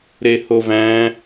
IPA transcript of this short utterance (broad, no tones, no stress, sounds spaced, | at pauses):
ɾ e h o v æ̃